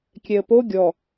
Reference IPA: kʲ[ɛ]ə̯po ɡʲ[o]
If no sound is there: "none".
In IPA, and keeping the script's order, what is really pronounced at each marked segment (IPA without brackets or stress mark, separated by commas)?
ɛ, ɔ